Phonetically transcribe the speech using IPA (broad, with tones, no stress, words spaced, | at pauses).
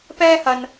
pɛː˥hɐ˧n